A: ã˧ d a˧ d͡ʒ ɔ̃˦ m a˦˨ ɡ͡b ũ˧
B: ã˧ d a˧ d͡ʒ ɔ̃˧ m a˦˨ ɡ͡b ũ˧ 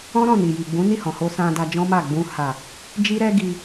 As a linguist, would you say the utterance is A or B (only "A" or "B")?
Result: A